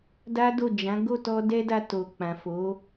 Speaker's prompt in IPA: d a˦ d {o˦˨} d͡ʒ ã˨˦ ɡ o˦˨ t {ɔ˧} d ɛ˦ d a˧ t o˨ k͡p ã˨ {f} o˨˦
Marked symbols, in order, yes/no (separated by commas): yes, yes, yes